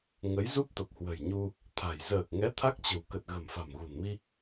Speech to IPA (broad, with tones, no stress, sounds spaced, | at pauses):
ŋ ə˨˦ j z u˦˥ p̚ t̪ ə˨˩ p̚ h w ə̤˨˩ j ɲ u˧ | t̪ʰ a̤˨˩ j z əː˨˩ k̚ ŋ ɛ˨˦ t̪ʰ a˦˥ k̚ t͡ɕ ə̤˨˩ w k ə˨˩ t̚ ɣ ə̤˨˩ m f a̤˨˩ m ɣ ṳ˨˩ n m i˧